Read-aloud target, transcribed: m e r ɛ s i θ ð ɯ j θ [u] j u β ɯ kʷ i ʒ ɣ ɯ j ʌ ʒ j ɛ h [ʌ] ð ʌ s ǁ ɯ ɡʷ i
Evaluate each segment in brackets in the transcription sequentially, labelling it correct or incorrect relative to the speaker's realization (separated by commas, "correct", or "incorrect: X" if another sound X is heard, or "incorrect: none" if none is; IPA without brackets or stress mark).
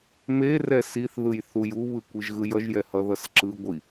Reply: correct, correct